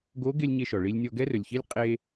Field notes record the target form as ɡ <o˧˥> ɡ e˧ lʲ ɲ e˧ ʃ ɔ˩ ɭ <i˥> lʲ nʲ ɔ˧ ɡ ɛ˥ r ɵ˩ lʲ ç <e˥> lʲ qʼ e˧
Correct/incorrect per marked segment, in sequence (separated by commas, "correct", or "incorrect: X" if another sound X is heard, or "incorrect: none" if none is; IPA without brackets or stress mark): correct, incorrect: i˧, incorrect: i˥